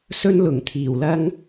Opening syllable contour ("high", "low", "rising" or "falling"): high